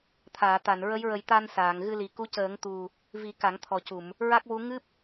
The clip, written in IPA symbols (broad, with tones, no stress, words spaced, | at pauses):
t̪ʰaː˨˩˨t̪a˨˩˨n ɹə˧˥jɹə˨˩˦j t̪a˧n saː˨˩˨ŋɣɨ˧li˨˩ ku˧˥cəː˨˩˦ŋt̪u˨˩ | vi˨˩˦ ka˨˩˦ŋt̪ʰɔ˨˩cu˨˩˨m | ɹa˦˥k̚wu˧˥ ŋɨ˦˥p̚